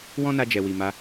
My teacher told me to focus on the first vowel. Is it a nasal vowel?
yes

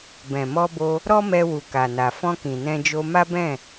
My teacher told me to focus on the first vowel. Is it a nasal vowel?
yes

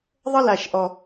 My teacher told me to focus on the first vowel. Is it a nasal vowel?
no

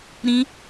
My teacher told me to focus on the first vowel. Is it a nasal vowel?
yes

